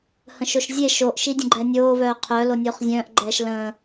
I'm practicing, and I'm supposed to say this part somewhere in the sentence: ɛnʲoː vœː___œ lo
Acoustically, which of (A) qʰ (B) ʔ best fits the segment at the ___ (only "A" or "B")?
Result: A